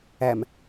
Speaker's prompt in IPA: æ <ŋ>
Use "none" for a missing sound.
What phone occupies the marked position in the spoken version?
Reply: m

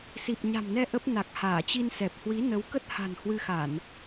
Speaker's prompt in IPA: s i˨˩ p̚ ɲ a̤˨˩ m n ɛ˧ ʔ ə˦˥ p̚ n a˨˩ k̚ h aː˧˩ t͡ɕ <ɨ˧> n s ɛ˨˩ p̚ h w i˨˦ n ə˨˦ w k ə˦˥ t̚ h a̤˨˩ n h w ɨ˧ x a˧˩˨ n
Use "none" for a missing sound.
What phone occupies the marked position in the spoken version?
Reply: i˧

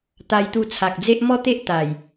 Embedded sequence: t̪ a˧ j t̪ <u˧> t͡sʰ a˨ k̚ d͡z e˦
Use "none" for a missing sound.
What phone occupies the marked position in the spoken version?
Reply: u˧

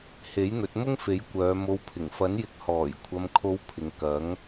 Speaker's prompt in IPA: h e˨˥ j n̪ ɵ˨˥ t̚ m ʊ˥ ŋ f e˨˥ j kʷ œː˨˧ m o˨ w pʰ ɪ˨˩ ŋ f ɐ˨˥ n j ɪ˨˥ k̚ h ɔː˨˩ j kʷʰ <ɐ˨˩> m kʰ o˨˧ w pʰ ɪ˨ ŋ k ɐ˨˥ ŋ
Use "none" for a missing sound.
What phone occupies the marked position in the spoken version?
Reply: ɐ˨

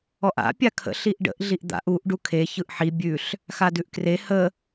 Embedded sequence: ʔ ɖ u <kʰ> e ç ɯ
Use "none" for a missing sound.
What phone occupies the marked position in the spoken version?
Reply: kʰ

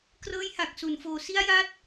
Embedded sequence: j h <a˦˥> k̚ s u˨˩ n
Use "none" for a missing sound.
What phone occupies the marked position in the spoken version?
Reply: a˨˩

